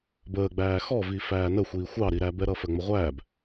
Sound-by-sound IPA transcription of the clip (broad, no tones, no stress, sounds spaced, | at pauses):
b əː ɡ͡b æː x ɔ v i f æː n ə xʷ iː xʷ ɑ ɾ i ɾ æ b ɛ ɾ ʌ f ɜ ŋ͡m ə ʁʷ æː b